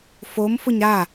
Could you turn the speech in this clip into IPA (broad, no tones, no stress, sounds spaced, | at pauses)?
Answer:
f o m f ʊ ɲ ɾ a